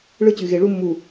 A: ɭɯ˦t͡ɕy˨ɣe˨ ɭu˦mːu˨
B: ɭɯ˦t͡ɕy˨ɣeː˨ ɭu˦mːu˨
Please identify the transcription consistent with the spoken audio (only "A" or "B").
A